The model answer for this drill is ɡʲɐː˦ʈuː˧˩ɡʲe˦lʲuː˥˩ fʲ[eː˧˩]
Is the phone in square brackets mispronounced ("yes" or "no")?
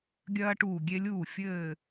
yes